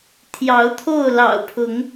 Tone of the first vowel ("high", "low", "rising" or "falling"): rising